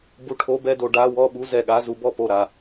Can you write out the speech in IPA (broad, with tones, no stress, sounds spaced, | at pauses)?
b u˧ ʈʰ o˧˥˧ b ɛ˥˧ d o˧ ɖ a˧˥˧ w ɔ˥˧ ɓ u˧˥˧ z ɛ˧˩ ɠ a˧˥˧ z u˧ b ɔ˥˧ p o˧˩ ɾ a˧˩